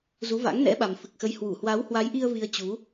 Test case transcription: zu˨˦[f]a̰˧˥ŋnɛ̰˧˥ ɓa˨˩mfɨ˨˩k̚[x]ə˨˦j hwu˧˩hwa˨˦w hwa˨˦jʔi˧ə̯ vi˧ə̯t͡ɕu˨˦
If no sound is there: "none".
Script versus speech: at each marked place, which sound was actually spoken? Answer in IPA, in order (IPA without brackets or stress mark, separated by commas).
v, x